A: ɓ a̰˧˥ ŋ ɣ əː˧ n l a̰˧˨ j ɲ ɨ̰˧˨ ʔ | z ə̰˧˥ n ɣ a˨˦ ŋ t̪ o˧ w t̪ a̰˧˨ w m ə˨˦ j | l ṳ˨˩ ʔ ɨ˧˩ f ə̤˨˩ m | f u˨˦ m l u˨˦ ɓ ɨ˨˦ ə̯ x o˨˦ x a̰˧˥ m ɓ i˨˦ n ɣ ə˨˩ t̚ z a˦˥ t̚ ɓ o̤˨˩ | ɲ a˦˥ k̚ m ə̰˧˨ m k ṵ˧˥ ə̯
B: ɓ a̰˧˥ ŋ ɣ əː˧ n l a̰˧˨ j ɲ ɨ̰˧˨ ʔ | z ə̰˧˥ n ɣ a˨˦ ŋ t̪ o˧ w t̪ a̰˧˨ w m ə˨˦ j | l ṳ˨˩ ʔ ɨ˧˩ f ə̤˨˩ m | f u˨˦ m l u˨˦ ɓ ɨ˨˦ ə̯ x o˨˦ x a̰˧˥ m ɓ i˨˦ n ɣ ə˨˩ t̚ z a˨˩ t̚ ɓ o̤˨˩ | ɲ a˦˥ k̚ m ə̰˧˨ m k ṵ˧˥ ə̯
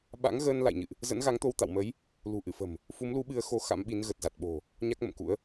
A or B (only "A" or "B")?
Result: B